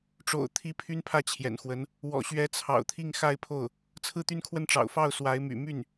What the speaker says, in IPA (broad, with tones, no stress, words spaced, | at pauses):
ʈ͡ʂo̰˨˩ʊ̯t̪ʰi˧˥ pʰy˥npʰä˥˩t͡ɕʰjɛ̰˨˩nxwə˧˥n | wɔ̰˨˩ɕɥɛ˧˥t͡sʰɑ̰˨˩ʊ̯t̪ʰi˥˧ŋ xa˥˧ɪ̯pʰo˥˩ʊ̯ | t͡sʰɹ̩˥˩t̪y˥nkʰwə˥˩nʈ͡ʂɑ̰˨˩ʊ̯ fɑ˥˩ʊ̯ swa˧˥ɪ̯my̰˨˩ my˥˩n